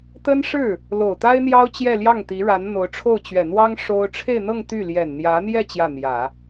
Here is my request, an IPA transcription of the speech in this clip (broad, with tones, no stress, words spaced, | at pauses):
t̪ə˥nʂɻ̩˥˩ | lo˨˩ʊ̯t̪a˥ɪ̯n̪jɑ˥ʊ̯ t͡ɕjɛ˥˧ljɑ˥˩ŋt̪i˧˥ɻa˧˥n n̪o˧˥ʊ̯ʈ͡ʂʰo˥˩ʊ̯ t͡ɕɥɛ˨˩n̪wɑ˥ŋ ʂo˥ʊ̯ ʈ͡ʂʰe˥˧ɪ̯n̪ɤ˥˧ŋ t̪y˥˩ ljɛ˨˩nn̪jä˧˥n̪jɛ˥˧ t͡ɕjä˥˩n̪jä˨˩˦